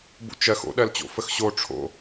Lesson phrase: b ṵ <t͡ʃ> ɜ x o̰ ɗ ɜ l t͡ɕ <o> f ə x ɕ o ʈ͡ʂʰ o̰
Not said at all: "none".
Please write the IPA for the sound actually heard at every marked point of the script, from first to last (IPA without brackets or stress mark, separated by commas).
t͡ʃ, o̰